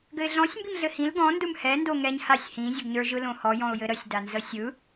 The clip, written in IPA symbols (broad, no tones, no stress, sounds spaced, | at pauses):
ɡ ɘ ɪ̯ ɮ ɔ̃ sʲ m b i m ɮ ɘ h ĩ l ɡ ɔ̃ n d ɯ m h ɛ n d o ŋ ɛ ɲ h a sʲ h ĩ zʲ ʊ ɡ ɲ ə˞ ʒ ɯ l õ h ɔ j ɔ̃ ʊ̯ j ɘ ɾ ə sʲ d a n z ə sʲ ɯ